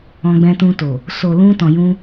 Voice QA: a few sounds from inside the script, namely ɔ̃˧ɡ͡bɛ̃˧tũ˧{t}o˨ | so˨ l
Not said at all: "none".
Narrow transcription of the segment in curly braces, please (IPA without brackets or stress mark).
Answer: t